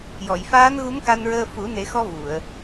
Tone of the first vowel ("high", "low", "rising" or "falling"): low